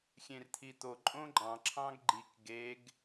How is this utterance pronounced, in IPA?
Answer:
xʲẽrt̪ʰit̪o ǃʼõɡ͡ǃɑ̃ ǁʰɑ̃ɡɡ͡ǃik ɡeɡ

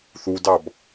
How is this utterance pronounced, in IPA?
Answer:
θudɑb

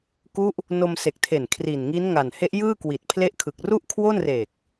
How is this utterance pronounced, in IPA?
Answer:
ku˦˥ʔ | no˧m se˨˩k̚tʰe˨˩n kʰri˨˩nŋi˦˥n ŋa˨˩nhe˦˥ʔjɯː˥˩kwi˨˩t̚ pʰle˦˥ʔkʰɯ˨˩k̚ ru˥˩ʔkʰwo˥˩nreː˨˩k̚

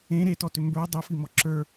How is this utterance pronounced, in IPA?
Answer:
ẽ ɾetɔtʏ mbə˞ dˤefimɔ ǁə˞

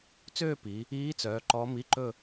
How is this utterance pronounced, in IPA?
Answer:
t͡søː˥˧pi˩˧ | iː˧˥t͡sœː˩˧ ǃɔ˧˥ mi˧˥˧ǃɵ˥˧

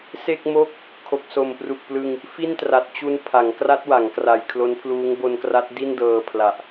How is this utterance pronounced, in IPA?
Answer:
se˥˩k̚mo˥˩k̚ | kʰo˨˩k̚so˨˩mpru˨˩k̚plɯ˧ŋ | fi˥˩ntra˨˩t̚t͡ɕu˧n pʰa˩˦ŋkra˦˥t̚wa˩˦ŋ kra˨˩jkʰlo˦˥npʰluː˦˥ŋ bo˧nkra˦˥t̚ di˥˩ndɤː˧pʰla˨˩ʔ

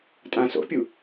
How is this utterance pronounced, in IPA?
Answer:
tʼãso̰pʲu

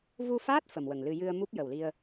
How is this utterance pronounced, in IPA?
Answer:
vu˧faː˦˥t̚ fə˨˩mwə˨˩ŋlɨ˧ jɨ˧ə̯mu˦˥p̚ jə˨˩wli˧ə̯

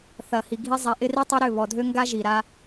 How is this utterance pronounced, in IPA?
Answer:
θɐ˨hi˨ ɡʱi˦zˤɛ˨˦ʔɪ˦ ri˦tˤɐ˦ɾʏ˦˨βɔ˨ dʱø˦ŋɡa˦ ʒi˨ɾa˦

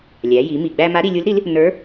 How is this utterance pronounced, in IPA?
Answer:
lʲæ˩˧ji˩˧ mi˩ɡ͡bæ˧ ma˧˥ɾi˧lʲu˧˥lɾi˧˥l | nə˞˧˥

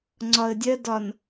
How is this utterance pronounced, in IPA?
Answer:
ŋ͡ǀɒə̯dʲɜdɒn

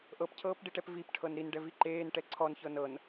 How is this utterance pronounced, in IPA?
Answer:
ʔɤpcʰɤːpɖiʈɛp vipʈʰɤn ɾinɖɛvi ǃeːnʈɛ ǀʰɔnçɤ nɤn

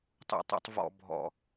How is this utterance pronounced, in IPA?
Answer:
tˤṵ˨tˤṵ˨tˤ vɔ̰˨ bʱɔ̰˨

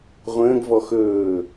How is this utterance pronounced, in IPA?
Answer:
ʁʷə̃ːɡvɔ xɵː

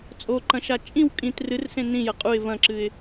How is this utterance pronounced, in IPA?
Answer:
t͡sʼoǃɐ̃ʃa t͡ʃʼĩw kʼĩt rɨrsẽ nĩjɐ qʼuɪ̯ vɐ̃ǁɨɪ̯

